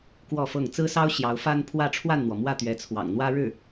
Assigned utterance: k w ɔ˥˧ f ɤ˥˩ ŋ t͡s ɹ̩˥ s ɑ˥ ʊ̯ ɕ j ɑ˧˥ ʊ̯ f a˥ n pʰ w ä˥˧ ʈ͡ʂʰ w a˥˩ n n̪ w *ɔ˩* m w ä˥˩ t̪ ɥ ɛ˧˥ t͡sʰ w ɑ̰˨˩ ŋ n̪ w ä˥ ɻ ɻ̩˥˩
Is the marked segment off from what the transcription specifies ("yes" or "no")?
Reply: no